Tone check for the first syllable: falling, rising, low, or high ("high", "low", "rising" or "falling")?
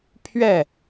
falling